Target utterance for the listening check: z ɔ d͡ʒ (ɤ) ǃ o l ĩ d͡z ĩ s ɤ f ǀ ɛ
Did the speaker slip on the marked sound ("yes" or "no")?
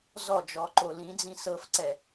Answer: yes